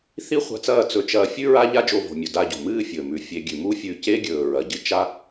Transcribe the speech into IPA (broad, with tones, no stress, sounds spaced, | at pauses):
θ i˦ χʷ a̤˧ t͡s ɐː˦˨ t͡s ɵ˧ t͡ʃ ɐː˧ fʲ ʉ˦ ɹ a˦ ʎ a˦ d͡ʒ o˧ v o̤˨ mʲ ɵ˨ d a˧ ɟ o̤˨ m ɨː˦ fʲ ɵː˨ m ʉ˨ fʲ e˧ ɡʲ ʉ˨ m u˦ fʲ ʉ˧ c e˦ ɡʲ ɵː˨ ɹ ɐ˨ ɟ ɨ˦ t͡ʃ a˦